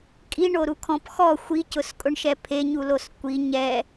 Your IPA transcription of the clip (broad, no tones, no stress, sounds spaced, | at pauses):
kʼ i ɳ o ɾ u kʰ ɔ̃ p x ɔ xʷ i c ʊ s kʼ ʊ ɳ ʃ ɛ pʰ e ɲ u l o s kʷ i ɲ ɛ